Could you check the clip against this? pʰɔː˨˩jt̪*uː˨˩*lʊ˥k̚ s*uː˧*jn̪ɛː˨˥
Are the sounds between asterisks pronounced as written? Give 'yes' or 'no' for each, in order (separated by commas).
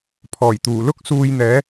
yes, yes